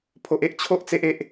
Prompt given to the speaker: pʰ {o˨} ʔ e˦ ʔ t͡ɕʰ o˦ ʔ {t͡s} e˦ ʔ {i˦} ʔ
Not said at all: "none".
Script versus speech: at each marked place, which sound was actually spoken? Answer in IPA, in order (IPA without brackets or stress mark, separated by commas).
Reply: o˦, t͡s, e˦